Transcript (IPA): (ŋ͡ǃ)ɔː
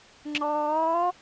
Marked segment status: incorrect: ŋ͡ǁ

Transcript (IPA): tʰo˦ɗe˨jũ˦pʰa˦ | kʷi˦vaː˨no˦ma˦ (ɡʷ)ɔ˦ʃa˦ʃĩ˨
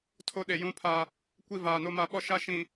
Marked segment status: incorrect: ɓ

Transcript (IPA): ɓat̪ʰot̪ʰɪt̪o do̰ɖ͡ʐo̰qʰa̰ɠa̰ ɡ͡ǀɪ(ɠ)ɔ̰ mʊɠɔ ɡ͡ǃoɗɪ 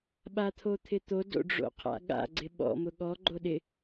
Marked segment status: incorrect: ɓ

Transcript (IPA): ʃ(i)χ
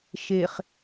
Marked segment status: incorrect: e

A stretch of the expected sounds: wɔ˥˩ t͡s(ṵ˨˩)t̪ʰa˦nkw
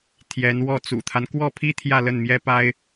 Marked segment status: correct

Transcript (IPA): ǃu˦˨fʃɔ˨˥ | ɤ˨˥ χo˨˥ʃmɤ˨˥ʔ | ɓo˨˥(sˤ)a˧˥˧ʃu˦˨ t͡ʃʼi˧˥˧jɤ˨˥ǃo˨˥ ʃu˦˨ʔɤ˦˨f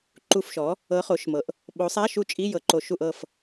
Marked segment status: correct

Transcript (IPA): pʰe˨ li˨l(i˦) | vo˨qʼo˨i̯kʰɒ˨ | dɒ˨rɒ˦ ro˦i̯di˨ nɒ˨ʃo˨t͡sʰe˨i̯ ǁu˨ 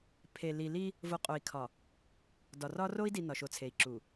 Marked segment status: correct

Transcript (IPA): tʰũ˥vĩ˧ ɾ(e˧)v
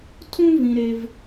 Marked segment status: correct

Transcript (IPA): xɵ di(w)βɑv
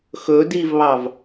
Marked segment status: incorrect: v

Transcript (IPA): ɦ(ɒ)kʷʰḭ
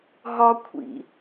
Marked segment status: correct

